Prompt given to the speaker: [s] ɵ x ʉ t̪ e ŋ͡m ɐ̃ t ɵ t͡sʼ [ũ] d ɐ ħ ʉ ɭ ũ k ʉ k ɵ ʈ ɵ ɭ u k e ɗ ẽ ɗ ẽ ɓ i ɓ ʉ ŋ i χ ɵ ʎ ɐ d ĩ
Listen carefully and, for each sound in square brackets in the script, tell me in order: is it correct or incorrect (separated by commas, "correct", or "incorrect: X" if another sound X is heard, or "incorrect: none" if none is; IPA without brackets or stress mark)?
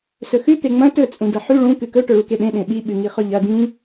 correct, correct